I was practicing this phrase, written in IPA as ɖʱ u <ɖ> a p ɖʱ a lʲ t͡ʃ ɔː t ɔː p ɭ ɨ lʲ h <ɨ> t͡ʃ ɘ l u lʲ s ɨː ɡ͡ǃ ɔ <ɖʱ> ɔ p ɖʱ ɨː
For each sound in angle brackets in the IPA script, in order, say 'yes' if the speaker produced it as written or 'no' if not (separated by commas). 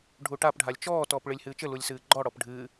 no, no, no